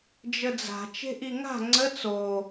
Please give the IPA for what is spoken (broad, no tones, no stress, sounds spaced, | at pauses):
d͡ʒ ə d͡z a̤ t͡ʃ e̤ ʔ i ŋ a̤ ŋ͡ǀ ə t͡s o